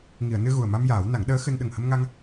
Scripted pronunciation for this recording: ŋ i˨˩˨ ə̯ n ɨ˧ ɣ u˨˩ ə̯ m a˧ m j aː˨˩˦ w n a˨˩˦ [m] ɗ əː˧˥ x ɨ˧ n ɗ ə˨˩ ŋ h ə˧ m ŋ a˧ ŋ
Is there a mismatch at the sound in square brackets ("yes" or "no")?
yes